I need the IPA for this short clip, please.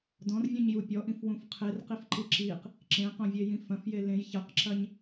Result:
d ɔ̃ r vʲ ũ ɲ j u pʲ ɔ ʔ ĩ f w ũ f qʰ e r q i f ǃ i ǁ i q | ǁ ẽ q õ vʲ e j ĩ f ɐ̃ f j e l ẽ j ç ɐ q ǁ ɐ ɲ

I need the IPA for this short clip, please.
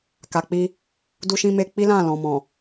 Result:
k a˨ k͡p i˧ | d u˧ ʃ ĩ˧ m e˧ k͡p i˦ l ã˦˨ l ɔ̃˨ m ɔ̃˨

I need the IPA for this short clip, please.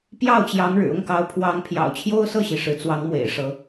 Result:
p j ɑ˥˩ ʊ̯ t͡ɕ j ɑ˧˥ ŋ ɻ ɻ̩˨˩ ʊ˥˩ ŋ k ɑ˧˥ ʊ̯ pʰ w ɑ˧˥ ŋ pʰ j ɑ̰˨˩ ʊ̯ t͡ɕʰ j o˥ ʊ̯ s ɤ˥˩ ɕ i˩ ʂ ɻ̩˧˥ t͡s w ɑ˧˥ ŋ m w ḛ˨˩ ɪ̯ ʂ ɤ˧˥

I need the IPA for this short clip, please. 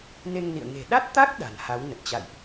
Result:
n e˧ ŋ n ḭ˧˨ ə̯ ŋ e̤˨˩ ɗ a˦˥ t̚ t̪ a˦˥ k̚ ɗ a̤˨˩ n h a˨˦ w n ə˨˩ t̚ t͡ɕ a̰˧˨ j ʔ

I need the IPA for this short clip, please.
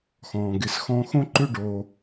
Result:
x ɔ̃ː˩ ɡ ɪ˩˥ s x ɔ̃˧ x õ˥ ǃ ʏ˥˩ ɖ oː˩

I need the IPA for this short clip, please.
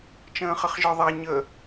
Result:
t͡ʃ ə̃ː χ ə χ ʒ ə˞ ðˤ æ ɲ ə

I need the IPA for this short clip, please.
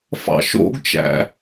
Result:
f ɑ̰ ʃ o̰ ɡ t͡ʃ æ̰

